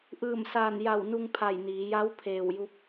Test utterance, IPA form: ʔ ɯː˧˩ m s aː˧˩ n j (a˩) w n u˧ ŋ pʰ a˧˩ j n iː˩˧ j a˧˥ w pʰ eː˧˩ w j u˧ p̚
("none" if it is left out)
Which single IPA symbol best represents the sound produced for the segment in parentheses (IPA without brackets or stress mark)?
a˧˩